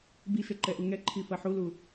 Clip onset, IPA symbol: b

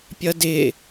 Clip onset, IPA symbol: pʲ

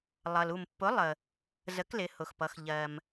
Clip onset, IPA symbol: lˠ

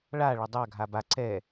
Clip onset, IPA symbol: ɭ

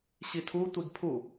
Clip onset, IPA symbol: ɕ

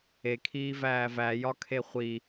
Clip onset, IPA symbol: e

